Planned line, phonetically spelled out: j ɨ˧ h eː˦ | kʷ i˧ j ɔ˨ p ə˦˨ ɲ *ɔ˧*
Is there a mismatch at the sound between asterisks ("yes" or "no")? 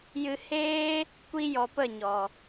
yes